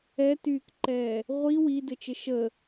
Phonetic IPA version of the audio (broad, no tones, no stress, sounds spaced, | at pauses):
ɛ t yː k ǃ ɛː | ʁʷ i w i d ɘ t͡ʃ ɘ ʃ ə